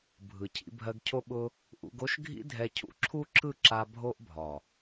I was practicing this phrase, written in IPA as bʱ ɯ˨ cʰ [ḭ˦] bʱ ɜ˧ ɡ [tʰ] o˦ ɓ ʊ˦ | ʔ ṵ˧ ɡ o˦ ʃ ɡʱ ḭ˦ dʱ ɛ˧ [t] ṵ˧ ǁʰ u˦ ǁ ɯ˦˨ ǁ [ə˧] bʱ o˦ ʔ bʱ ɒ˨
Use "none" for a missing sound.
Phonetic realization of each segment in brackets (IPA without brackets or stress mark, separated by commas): ḭ˧, cʰ, cʰ, a˧